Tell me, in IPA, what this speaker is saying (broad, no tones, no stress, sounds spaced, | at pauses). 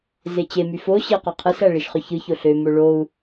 z e t͡ɕ e m y f o ɕ i u̯ q ɑ qʰ ɯ s æ ɭ i ʃ χ ø ç ɯ ç o ɬ ø m o ɭ o u̯